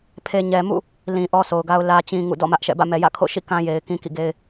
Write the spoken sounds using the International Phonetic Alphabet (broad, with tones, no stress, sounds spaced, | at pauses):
pʰ e˨ ɲ ɛ˨ m ṵ˦˨ | l ĩ˨ ʔ ɔ˦ sʰ o˨ ʊ̯ ɡ a˦ ʊ̯ l ä˦ t͡ɕ ĩ˦ ŋ ṵ˦˨ d ɔ̰˦˨ m ä˦ ʔ ʃ ɛ̰˦˨ b ä̰˦˨ m ɛ˨ j ä̰˦˨ kʰ o̰˦˨ ʃ ḭ˦˨ k ã˦ j e˨ ɪ̯ k ĩ˦ k ḭ˦˨ ɡ e˦ ɪ̯